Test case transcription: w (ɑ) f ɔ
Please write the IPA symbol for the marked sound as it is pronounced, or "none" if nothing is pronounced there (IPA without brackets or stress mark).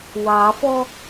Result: ɑ